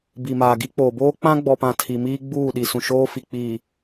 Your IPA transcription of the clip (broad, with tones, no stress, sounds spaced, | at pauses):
b i˨ m aː˨ ɡ i˦ k͡p oː˨ b oː˦ k͡p ã˦ ɡ͡b ɔ˨ p ã˨ tʰ i˨ m iː˦ ɡ͡b uː˦˨ ɗ i˨ s ũ˨ ʃ oː˦ f i˨ k͡p iː˨